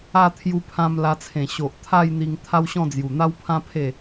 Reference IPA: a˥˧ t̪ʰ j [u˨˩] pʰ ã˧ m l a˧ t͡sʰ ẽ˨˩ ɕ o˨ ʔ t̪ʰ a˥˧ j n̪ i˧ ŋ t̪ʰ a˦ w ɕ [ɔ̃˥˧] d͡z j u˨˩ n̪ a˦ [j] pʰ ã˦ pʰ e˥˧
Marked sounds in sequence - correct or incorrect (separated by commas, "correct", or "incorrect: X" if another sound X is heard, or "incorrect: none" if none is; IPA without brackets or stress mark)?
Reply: incorrect: u˧, correct, incorrect: w